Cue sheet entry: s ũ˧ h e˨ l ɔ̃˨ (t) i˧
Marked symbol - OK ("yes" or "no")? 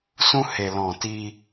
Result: yes